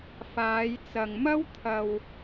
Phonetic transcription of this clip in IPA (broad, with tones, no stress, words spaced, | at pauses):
faː˨˧jt͡sɐ˨ŋ mɐ˥wt̪ʰɐ˧w